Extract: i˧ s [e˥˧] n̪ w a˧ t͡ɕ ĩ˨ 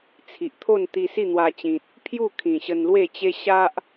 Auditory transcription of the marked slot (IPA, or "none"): i˥˧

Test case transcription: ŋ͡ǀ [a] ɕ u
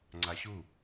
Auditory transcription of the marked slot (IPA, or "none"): a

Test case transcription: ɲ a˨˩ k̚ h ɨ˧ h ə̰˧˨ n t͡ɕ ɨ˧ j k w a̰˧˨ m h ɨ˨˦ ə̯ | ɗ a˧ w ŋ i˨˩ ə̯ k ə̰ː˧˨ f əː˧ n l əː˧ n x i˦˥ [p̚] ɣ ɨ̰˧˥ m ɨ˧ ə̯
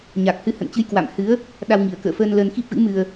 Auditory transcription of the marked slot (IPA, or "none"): p̚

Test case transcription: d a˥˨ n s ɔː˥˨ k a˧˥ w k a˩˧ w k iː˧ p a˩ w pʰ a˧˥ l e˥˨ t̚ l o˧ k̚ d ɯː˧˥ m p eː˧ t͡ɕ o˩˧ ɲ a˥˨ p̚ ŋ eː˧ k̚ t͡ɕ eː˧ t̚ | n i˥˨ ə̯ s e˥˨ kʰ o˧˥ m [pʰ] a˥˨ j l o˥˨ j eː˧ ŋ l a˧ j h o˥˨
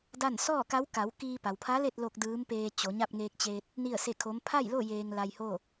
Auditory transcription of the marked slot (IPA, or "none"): pʰ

